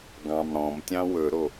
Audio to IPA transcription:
ɡɑ̃mɽɔ̃mtʲɑ̃ wɵɾo

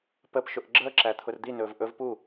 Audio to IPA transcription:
pəpʃʊʔ ɡ͡ǁəːǁæ t̪ʰʊrd̪inɵːv ʔɵv pu

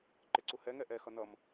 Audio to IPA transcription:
ǃɪǀuhɛ ŋɛʔɛ xʌnʌm

